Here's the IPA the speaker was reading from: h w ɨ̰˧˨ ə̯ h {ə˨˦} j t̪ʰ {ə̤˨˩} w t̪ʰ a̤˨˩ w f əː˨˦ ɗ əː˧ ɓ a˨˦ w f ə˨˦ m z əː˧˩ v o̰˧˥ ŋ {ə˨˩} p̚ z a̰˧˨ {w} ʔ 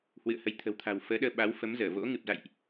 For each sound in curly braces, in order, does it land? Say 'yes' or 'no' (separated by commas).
yes, yes, no, no